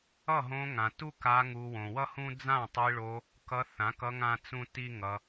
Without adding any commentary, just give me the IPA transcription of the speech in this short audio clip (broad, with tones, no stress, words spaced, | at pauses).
ʌ˦˨ɦõ˧ ŋã˨tu˦ka˧ ŋu˧ wõ˨wʌ˦hũ˦ d͡zã˦˨tˤi˧ɭo˧ | kʌ˧θã˨˦kʌ˧ ŋã˦t͡sũ˦ti˦ŋʌ˧